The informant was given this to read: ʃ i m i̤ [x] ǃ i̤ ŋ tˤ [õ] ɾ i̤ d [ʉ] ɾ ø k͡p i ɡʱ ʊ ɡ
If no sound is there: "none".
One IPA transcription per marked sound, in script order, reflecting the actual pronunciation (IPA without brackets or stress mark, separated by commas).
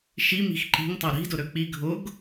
x, o, ʊ